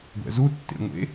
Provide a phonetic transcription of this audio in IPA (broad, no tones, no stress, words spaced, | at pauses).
ɡʷɛ̰zutːḛŋʷḛ